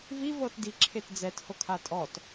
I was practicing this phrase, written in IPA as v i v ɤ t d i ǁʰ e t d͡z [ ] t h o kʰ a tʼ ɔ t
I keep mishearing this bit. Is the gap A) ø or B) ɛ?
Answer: B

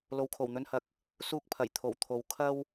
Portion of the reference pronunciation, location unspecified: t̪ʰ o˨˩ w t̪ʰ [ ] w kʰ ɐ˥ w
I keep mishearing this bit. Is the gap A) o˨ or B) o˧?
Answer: A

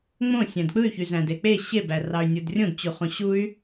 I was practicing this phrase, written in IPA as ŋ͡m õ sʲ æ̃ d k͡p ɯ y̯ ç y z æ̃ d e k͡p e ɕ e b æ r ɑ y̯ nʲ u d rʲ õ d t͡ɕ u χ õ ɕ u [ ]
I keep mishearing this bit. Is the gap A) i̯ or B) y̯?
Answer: B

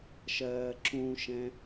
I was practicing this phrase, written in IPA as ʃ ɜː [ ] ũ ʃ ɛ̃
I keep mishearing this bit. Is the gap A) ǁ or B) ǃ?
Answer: A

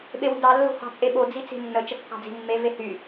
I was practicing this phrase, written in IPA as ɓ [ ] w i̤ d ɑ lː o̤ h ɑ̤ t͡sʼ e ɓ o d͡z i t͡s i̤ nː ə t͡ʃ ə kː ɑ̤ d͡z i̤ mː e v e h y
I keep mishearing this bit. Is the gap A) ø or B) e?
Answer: B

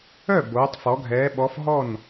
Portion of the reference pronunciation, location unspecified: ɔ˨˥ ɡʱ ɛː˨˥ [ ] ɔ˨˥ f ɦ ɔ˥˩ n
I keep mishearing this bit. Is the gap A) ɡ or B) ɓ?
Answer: B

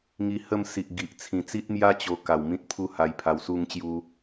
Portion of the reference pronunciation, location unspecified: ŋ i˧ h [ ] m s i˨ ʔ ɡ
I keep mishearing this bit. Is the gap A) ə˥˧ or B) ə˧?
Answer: A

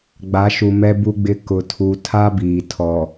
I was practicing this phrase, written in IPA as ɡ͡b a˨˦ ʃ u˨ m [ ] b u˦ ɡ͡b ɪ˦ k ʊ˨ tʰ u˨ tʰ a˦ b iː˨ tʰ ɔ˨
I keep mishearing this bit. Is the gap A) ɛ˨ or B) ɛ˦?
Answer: B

